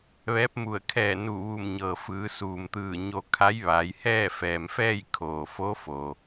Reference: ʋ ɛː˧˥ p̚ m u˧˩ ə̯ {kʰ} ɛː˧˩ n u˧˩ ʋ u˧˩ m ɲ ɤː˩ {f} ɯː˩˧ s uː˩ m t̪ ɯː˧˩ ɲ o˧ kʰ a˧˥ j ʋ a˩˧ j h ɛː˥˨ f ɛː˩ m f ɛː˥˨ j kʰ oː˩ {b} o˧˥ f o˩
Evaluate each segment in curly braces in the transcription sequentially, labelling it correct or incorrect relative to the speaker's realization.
correct, correct, incorrect: f

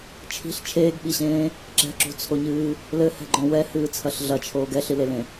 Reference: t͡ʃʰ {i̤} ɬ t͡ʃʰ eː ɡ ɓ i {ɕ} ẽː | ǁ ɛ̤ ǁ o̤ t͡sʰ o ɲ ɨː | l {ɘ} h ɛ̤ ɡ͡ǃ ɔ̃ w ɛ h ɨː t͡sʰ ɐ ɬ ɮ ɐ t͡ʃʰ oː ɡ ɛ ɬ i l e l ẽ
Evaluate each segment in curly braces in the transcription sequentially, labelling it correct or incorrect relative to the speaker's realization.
correct, correct, correct

